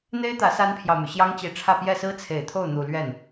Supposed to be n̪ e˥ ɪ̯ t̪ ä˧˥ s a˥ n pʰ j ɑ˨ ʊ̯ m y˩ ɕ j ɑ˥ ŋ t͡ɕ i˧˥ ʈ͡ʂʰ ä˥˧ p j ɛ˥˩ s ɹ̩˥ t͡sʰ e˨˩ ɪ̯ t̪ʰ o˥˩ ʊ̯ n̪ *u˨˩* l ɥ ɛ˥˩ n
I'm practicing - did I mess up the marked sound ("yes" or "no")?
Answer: no